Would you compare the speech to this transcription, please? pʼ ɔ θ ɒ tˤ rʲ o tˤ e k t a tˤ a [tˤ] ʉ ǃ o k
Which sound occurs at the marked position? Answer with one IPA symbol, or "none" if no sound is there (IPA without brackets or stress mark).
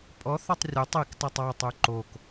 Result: tˤ